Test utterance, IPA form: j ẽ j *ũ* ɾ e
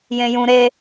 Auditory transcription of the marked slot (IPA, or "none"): ũ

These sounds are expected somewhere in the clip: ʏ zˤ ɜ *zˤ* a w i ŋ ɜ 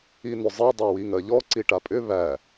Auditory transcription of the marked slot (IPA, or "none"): dˤ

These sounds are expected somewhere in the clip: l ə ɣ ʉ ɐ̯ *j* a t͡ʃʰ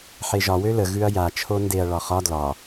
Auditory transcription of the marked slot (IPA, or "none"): j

